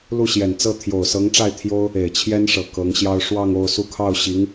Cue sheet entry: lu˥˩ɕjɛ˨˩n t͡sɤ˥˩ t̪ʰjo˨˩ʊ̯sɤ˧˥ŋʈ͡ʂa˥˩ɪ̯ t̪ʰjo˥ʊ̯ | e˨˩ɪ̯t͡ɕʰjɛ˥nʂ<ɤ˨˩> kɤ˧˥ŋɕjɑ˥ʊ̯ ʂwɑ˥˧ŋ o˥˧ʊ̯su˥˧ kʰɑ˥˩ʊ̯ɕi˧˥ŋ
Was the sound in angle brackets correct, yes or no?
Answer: yes